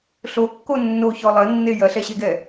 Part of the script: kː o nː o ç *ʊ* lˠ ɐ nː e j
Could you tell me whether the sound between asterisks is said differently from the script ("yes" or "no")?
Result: yes